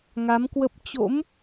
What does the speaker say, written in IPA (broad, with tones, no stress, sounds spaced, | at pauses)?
ŋ a˨˦ m k w ə˦˥ p̚ t͡ɕ o̰˧˥ m